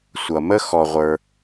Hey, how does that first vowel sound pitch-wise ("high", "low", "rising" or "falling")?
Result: low